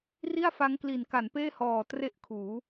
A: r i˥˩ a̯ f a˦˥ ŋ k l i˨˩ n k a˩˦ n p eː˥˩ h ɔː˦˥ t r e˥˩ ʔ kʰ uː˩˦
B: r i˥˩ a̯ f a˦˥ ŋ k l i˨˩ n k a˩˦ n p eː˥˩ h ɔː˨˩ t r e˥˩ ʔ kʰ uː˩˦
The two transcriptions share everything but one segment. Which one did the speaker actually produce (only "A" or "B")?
B